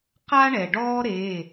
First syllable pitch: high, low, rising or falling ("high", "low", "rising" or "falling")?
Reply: high